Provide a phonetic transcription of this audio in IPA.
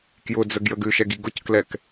k j ʊ d͡z ə ɡ j ə ɡ ʉ ʃ ɛ ɡ i ɡ ʊ c k l ɛ k

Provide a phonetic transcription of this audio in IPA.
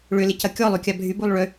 ɭ ʏ l ɪ c ɐ kʲ ɔ lˠ y kʲ a bʱ y b u lˠ ɭ ʏ

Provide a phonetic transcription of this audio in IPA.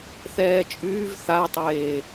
θ ɛː t͡ʃʼ yː v θ a tˤ eː

